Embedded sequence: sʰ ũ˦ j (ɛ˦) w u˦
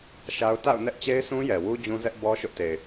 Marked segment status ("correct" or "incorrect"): incorrect